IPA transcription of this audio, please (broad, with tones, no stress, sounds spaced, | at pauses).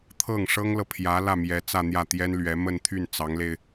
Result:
t̪ʰ ɤ˥˩ ŋ ʂ ɤ˥ ŋ l ɤ˨ pʰ j ä˧˥ l ä˥˩ m j ɛ˧˥ t͡s ä˥˧ n̪ j ä˥˩ t̪ j ɛ˥ n l ɥ ɛ˧˥ m ə˥˧ n t̪ʰ y˥˩ n t͡s ɑ˧˥ ŋ l e˧ ɪ̯